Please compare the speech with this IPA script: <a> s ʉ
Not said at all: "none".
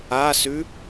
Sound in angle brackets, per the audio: a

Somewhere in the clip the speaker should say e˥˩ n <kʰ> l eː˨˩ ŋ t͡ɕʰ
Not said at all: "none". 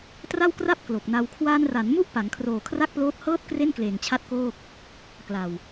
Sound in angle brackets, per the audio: k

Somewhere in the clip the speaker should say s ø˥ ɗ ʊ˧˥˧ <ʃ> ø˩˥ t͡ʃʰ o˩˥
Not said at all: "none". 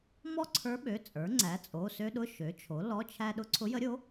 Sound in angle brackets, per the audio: ʃ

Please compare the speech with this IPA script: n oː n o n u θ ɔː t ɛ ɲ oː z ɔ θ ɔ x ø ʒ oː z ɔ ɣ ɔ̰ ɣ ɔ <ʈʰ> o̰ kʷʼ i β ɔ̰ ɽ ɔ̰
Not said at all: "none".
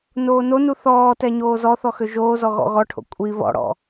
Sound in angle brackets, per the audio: ʈʰ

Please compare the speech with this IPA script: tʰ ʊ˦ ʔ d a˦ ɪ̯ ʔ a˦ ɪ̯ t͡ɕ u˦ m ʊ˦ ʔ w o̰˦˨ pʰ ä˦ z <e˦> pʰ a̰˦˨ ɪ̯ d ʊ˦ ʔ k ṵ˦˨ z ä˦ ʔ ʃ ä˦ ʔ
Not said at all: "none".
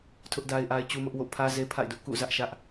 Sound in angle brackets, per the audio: e˦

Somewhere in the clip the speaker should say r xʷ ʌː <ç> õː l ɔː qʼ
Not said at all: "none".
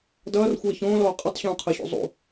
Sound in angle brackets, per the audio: ç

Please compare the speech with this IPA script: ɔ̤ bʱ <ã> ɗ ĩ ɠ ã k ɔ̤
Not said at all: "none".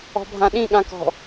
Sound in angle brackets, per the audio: ã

